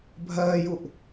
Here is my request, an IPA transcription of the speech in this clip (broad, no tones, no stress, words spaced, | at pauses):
bʱɜːjuʔ